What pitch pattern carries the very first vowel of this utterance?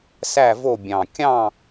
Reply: falling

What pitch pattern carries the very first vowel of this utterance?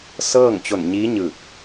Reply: falling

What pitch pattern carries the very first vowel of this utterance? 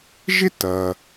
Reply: high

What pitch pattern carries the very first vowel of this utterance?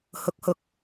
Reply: rising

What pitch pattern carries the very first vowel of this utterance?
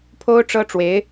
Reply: high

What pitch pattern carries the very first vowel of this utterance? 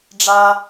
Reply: high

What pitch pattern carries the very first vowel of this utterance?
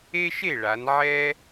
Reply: high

